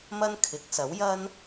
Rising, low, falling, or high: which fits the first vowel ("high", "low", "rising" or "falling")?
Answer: high